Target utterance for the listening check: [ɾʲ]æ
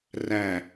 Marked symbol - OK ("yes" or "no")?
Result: no